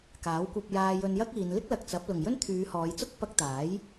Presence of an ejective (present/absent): absent